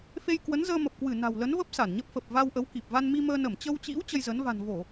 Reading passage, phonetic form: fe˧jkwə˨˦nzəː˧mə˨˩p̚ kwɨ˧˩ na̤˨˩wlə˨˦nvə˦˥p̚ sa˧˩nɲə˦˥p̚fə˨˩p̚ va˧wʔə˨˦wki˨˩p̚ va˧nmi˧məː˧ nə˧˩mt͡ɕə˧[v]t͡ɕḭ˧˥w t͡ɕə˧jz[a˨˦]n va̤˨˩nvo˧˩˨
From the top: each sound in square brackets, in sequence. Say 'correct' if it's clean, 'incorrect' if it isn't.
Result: incorrect, incorrect

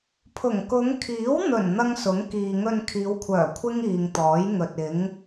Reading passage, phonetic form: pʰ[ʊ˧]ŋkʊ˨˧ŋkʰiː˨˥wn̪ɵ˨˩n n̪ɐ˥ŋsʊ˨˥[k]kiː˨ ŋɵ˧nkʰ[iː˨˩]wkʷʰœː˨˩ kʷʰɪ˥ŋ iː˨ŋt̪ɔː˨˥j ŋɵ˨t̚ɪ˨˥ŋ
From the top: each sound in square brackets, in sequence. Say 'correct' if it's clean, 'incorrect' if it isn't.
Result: incorrect, incorrect, incorrect

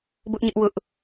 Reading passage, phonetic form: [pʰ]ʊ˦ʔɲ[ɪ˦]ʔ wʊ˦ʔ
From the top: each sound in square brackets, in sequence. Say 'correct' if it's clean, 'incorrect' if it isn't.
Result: incorrect, correct

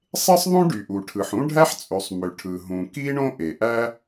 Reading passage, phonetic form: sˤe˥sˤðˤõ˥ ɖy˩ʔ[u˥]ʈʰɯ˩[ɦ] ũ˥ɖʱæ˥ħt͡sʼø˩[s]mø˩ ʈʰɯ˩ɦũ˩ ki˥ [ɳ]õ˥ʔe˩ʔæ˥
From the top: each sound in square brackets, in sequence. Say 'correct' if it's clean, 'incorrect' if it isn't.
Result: incorrect, incorrect, incorrect, correct

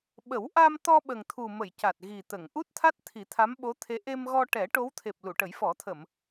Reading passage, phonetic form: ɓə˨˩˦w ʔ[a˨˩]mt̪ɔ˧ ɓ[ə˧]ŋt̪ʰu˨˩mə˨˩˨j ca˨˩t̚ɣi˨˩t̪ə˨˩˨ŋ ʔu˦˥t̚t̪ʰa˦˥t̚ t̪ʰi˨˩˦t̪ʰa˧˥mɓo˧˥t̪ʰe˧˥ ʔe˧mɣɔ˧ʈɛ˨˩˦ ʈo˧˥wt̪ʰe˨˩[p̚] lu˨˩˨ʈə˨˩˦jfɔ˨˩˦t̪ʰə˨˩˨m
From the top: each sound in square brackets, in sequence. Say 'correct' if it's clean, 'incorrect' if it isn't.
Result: incorrect, incorrect, correct

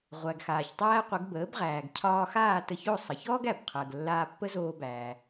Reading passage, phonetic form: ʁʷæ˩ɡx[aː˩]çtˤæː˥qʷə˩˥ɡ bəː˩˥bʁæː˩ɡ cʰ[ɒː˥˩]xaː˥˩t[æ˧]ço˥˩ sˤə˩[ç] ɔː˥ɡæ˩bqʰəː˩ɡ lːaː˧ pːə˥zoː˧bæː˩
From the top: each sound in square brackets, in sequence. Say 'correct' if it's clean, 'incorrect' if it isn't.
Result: correct, incorrect, incorrect, correct

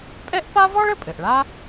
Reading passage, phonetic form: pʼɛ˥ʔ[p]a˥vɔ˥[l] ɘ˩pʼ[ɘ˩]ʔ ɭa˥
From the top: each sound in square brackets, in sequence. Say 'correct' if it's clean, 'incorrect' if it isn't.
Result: correct, incorrect, correct

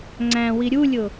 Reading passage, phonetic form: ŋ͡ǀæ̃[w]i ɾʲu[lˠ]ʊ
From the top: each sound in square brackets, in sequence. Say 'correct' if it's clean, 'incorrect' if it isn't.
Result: correct, incorrect

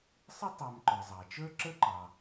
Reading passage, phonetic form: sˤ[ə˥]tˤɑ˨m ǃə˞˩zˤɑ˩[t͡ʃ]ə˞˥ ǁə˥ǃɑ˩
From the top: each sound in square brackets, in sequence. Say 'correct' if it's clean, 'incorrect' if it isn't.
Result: correct, correct

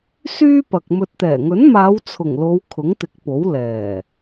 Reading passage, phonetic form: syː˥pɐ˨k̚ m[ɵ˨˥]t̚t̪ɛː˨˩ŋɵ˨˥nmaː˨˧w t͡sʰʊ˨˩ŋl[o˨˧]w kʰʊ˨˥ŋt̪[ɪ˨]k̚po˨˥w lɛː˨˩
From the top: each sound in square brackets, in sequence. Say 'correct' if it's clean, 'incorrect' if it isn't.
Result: incorrect, correct, incorrect

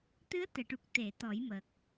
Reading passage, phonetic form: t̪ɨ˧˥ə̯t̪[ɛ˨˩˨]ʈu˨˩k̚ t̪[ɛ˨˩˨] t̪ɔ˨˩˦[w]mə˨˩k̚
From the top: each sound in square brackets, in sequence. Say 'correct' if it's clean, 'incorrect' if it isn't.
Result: correct, incorrect, incorrect

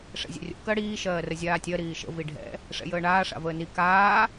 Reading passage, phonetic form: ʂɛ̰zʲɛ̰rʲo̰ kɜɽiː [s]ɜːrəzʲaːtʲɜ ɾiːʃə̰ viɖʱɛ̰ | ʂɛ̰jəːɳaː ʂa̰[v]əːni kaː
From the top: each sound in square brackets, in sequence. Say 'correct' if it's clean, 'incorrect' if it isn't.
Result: incorrect, correct

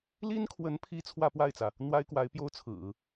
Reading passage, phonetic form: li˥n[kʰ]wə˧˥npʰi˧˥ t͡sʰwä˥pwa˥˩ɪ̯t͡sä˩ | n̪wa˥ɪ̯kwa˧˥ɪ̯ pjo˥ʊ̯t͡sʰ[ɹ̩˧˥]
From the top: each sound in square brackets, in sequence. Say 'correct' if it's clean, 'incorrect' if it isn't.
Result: correct, incorrect

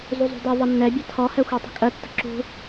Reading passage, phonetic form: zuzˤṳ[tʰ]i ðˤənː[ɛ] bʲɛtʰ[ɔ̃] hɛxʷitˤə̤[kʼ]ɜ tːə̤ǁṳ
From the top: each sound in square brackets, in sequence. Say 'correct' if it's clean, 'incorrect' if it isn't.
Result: incorrect, correct, incorrect, correct

